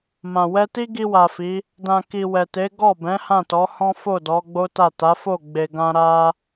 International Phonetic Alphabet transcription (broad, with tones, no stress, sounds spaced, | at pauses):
m ã˨ w ɛ˧ t i˦ ɡ i˧ w a˨ f i˨˦ | d ã˨ k i˨ w ɛ˨ t e˨˦ ɡ ɔ˦˨ b ɛ̃˨˦ h ã˦˨ t ɔ˨˦ h ɔ̃˦ f o˦˨ d ɔ˨˦ ɡ͡b o˦ t a˦˨ t a˨˦ f o˦˨ ɡ͡b e˨ ɡ ã˧ ɾ a˦